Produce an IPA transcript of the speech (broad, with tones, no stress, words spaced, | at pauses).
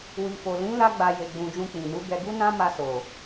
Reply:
wi˨fo˨ lĩ˨˦ la˦ɡ͡ba˧ je˧ɡ͡bũ˧ d͡ʒũ˧k͡pĩ˨nu˨˦ ɡɛ˧ɡu˦nã˦ma˧ so˨